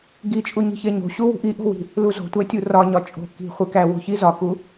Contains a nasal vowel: no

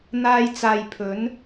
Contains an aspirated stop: yes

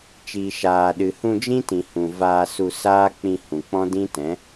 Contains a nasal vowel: yes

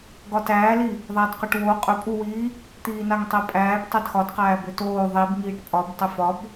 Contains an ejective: yes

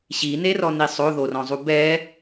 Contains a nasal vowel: yes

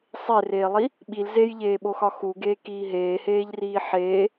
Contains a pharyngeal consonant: yes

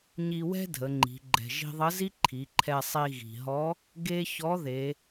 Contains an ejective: no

